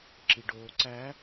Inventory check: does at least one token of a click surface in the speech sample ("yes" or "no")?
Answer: yes